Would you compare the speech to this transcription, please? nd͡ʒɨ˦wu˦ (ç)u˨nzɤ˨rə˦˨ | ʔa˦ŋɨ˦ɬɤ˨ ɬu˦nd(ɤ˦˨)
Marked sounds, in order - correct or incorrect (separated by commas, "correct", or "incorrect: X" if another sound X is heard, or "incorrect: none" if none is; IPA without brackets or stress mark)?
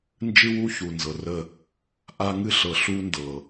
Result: correct, incorrect: ɤ˨